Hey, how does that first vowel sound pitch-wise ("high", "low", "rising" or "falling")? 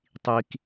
high